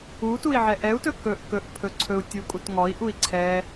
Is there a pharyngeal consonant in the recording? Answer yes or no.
yes